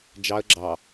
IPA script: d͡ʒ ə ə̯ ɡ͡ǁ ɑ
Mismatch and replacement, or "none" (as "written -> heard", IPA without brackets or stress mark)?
ə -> ɑ